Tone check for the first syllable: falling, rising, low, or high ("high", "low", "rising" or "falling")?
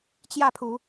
falling